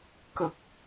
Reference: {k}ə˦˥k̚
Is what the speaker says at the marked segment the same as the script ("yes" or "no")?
yes